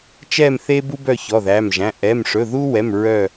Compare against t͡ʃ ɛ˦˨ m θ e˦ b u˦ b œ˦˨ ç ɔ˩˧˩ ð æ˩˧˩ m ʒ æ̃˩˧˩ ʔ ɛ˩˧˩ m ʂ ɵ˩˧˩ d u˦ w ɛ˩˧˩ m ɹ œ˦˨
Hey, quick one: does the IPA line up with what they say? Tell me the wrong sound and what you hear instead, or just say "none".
d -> ð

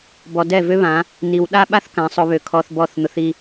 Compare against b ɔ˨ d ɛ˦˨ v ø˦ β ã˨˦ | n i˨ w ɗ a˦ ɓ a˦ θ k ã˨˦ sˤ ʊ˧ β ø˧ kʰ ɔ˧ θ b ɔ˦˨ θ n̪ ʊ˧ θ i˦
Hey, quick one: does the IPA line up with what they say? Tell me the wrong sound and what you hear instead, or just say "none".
none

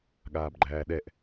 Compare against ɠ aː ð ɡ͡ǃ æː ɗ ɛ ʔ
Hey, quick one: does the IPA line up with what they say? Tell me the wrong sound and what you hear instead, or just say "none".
ð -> b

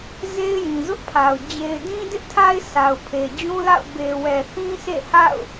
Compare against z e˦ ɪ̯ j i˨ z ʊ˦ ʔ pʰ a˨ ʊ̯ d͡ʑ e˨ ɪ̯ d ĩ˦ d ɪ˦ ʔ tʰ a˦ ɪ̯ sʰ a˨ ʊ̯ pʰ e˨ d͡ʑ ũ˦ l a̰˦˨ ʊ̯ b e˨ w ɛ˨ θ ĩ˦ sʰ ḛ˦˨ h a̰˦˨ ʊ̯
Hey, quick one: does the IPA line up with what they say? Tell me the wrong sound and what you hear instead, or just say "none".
i˨ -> ĩ˨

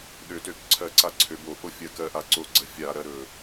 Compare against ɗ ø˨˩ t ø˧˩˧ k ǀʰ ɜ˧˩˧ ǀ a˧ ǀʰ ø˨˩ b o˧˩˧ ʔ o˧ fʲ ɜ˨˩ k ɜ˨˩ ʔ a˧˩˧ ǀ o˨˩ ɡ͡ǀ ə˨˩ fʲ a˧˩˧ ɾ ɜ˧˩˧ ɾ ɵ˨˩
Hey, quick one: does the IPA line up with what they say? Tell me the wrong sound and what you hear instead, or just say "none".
none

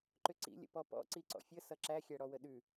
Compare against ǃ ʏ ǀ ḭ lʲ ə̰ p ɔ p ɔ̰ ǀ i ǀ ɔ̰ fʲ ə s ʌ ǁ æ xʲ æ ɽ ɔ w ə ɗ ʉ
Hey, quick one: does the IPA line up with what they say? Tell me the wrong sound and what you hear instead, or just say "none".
none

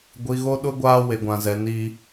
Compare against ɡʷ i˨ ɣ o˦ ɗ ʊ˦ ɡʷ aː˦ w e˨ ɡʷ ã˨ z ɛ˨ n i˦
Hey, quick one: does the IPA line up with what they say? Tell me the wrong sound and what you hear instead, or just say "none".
none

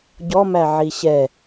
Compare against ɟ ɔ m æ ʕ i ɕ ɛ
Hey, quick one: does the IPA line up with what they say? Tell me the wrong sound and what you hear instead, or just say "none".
none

